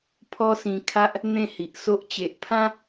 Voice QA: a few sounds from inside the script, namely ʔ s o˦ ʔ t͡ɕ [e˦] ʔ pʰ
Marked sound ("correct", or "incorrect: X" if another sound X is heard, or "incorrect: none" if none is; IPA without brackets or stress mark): incorrect: e˨